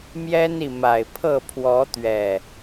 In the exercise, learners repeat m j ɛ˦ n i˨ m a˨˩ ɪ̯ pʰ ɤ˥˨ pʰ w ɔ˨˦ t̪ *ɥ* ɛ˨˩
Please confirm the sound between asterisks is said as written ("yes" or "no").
yes